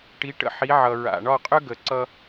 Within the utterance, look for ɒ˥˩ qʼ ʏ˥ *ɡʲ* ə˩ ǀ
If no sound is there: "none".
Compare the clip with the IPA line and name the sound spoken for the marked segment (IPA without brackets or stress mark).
ɡ